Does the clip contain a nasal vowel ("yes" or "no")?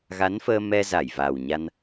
no